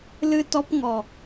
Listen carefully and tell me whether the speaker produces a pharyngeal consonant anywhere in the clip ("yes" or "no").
no